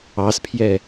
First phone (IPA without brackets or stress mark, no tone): ɑ